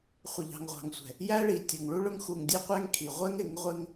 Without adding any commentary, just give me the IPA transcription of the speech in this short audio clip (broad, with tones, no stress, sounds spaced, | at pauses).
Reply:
χʷ ə˨ ʎ ɑ̤˨ ŋ ʁʷ ɑ̤˨ ŋ sʷ ɛ̤˨ | j æ˦ ɭ i˨ tʲ ʊ˨ ŋ ɭ u˦ ɭ ʊ˦ ŋ x u˨ ŋ dʲ ɛ˦ qʷ æ˦ ŋ kʰ i˨ ʁʷ ɛ˦ ŋ ɪ˨˦ ŋ ʁʷ ɪ˦ ŋ